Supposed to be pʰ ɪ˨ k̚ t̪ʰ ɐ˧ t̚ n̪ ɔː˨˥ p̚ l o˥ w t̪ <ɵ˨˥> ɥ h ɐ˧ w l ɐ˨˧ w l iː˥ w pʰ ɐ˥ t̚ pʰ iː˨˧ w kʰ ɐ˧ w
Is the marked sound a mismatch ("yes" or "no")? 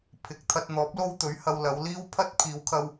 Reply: no